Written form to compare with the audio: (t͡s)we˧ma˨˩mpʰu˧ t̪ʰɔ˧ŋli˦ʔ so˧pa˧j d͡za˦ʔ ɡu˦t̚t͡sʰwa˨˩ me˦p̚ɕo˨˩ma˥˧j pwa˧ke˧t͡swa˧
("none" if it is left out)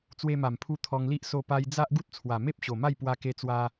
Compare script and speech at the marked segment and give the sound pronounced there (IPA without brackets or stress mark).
t͡s